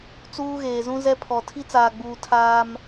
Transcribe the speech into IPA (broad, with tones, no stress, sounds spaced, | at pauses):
t͡s uː˦ ɣ eː˨ z ũ˦ z ɛ˦ pʰ ɔ˨ tʰ i˦ t͡s aː˨ ɡ͡b uː˨ tʰ aː˦ m